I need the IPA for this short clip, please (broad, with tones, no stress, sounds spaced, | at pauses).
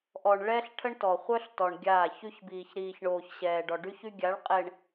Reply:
ʔ ɔ˨ ɳ ɭ ɛ˦ ɬ ʈʰ ə˦ ɳ t ɔ˨ χʷ œ˦ ɬ t ɔ˨ ɳ ɡʲ aː˦˨ ç y˦ ç b iː˨ ç ɾ iː˨ ç ɳ oː˨ ç ɕ ɛː˨ ɖ ɔ˨ ɖ y˦ ç y˦ ɡʲ a˨˦ ɭ qʼ e˨ ɳ